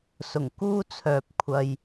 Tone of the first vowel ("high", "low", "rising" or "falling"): low